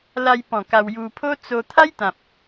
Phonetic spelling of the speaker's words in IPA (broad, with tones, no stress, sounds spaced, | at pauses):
l a˧ j p ɔ̃˨˩ k a˧ w j u˧ pʰ o˦ t͡s o˧ t̪ʰ a˦ j t̪ ã˨ p̚